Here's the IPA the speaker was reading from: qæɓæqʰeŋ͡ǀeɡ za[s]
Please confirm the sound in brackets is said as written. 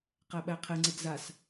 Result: yes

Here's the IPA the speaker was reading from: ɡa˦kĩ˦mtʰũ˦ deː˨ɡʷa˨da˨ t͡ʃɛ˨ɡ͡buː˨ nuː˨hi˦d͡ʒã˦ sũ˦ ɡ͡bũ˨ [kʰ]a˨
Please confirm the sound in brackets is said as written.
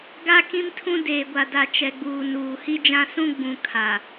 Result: yes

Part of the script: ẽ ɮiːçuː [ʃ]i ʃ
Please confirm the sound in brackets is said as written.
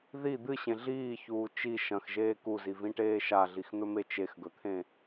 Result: no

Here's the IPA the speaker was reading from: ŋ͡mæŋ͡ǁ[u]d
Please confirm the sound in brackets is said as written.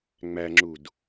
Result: yes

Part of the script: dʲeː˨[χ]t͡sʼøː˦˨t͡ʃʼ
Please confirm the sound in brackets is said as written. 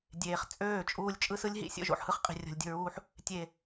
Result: yes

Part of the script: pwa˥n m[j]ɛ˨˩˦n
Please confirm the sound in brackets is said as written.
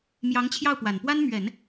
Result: no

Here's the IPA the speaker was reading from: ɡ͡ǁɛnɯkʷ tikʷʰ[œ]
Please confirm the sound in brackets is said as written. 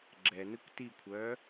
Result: no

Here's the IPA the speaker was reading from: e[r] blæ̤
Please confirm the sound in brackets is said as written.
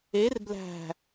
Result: yes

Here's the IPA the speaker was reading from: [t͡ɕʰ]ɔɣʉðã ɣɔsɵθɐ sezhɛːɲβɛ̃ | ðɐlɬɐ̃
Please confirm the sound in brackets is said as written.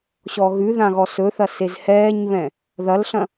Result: no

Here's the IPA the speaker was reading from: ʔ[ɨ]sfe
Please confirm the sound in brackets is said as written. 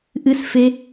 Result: yes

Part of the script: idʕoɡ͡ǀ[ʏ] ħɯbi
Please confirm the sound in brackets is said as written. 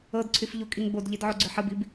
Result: yes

